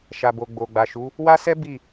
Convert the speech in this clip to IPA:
ʃ a˨ b o˨ ɡ͡b o˨ ɡ͡b a˨ ʃ u˨˦ | w a˦ s ɛ˦ b i˦˨

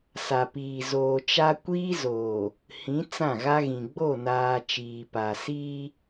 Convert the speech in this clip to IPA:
s a˨ p iː˨ z oː˨ t͡ʃ a˦ kʷ iː˦ z oː˨ | h ĩ˨˦ t͡s ã˦˨ ɣ a˦ ɣ ĩ˨ ɡ͡b o˦˨ n aː˨ t͡ʃ iː˨ p a˨ s iː˦

